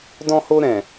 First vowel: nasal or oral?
nasal